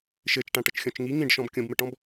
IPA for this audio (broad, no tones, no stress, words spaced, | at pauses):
ʃɘt͡ʃ ʈãʈʌt͡ʃxʲɔ̃t͡ʃŋi ŋĩɖʃɔ̃b kʲõbmɘʈɔ̃b